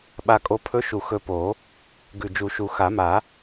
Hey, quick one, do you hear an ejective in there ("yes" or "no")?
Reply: yes